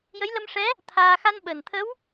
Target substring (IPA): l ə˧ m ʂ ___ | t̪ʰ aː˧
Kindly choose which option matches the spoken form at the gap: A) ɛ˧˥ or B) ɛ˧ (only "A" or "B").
A